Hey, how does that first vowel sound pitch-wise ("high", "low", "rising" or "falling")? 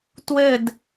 falling